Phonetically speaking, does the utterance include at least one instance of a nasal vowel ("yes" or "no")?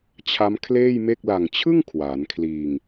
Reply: no